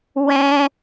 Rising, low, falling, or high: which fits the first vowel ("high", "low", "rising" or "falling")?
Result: high